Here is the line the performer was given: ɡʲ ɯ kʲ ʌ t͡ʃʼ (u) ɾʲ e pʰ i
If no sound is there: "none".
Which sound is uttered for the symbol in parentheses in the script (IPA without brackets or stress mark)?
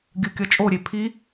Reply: o